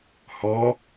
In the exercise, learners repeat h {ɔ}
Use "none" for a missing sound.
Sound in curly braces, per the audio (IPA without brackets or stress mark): ɔ